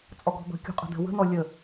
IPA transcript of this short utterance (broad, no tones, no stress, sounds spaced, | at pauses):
t͡sʼ ɔ ɡ ɔ̤ b ə̤ kʲ ṳ qʼ ə̤ d ə̤ w ə̤ n ɔ lʲ ə